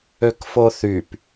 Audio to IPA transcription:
ø k f o θ y p

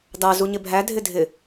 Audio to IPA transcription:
d ɑ z u ɲ ɪ bʱ æ dʱ ɪ dʱ ɪ

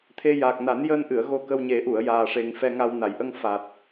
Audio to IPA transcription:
t̪ʰ e˧ j aː˨˩ k̚ n a˨˩˦ n j əː˧ n ʔ ɨ˨˩˨ ə̯ ɣ o˧ k ə˧ w ɲ e˨˩˦ ʔ u˨˩˨ ə̯ j aː˨˩ ʂ e˨˩ ŋ f ɛ˧ ŋ a˧ w n a˨˩˨ j ʔ ə˧ ŋ f a˨˩ t̚

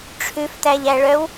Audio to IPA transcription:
ʈ͡ʂʰ ʉ f t æ ʎ æ ɭ œ w

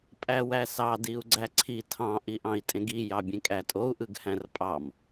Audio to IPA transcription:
pʼ æ w æ s ɑ d i u̯ ɡ͡ǀ æ ǀʰ i tʰ ɑ̃ ʔ i ʔ ɑ̃ i̯ tʼ ẽ ɡ i j ɑ bʲ ẽ kʼ æ tʼ o u̯ ʔ ɯ ɡ h æ̃ r pʼ ɑ m

